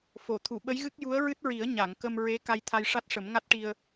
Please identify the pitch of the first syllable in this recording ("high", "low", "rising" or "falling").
low